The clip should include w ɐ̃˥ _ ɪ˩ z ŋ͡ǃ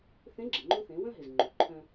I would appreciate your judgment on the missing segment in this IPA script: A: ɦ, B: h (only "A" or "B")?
A